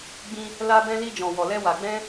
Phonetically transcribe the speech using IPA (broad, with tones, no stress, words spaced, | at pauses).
ɡ͡bĩ˧ | la˧bɛ̃˧ li˧d͡ʒɔ̃˨ wɔ˨lɛ˧ wa˨ɡ͡bɛ̃˧